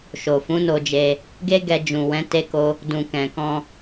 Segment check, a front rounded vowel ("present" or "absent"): absent